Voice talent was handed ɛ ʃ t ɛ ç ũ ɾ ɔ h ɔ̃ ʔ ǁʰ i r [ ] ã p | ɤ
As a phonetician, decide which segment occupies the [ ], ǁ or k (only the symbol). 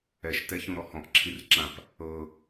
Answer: ǁ